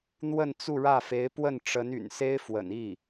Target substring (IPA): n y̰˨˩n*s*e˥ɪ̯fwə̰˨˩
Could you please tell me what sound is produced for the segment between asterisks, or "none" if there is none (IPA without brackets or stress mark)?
s